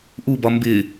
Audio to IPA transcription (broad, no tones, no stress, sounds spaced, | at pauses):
ʔ u b ɒ m b ɪ